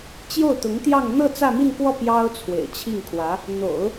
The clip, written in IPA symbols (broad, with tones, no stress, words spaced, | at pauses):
t͡ɕjo˥˩ʊ̯t̪ʊ˧˥ŋt̪jɑ˥˧ŋ n̪ɤ˥˧ t͡sä˥˧mi˥˧nkwɔ˥˩ pjɑ˥ʊ̯ t͡sʰwḛ˨˩ɪ̯t͡ɕʰi˥˩ŋkʰwä˧˥ | n̪o̰˨˩˦ʊ̯